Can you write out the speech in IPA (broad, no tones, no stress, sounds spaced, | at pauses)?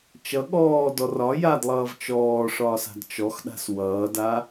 t͡ʃ ʌ ɠ ɔː d ɔ r ɒ j a d lˠ ʌː v t͡ʃ ɔː ʂ ɒː s a̤ d t͡ʃ ɔ x ɗ a̤ s w ʌː d a